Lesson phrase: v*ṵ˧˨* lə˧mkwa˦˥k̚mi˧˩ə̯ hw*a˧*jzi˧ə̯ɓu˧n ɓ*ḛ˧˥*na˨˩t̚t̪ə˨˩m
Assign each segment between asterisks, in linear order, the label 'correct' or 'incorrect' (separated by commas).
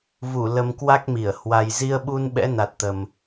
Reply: incorrect, incorrect, incorrect